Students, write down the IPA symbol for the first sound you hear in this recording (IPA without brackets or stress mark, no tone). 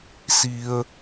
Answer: s